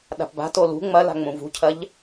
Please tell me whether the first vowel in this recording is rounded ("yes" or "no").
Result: no